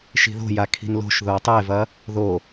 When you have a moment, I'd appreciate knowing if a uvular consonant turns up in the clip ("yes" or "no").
no